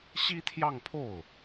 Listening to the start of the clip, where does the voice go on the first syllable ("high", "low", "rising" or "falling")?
high